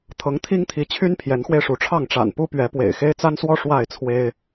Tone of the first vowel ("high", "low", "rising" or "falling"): rising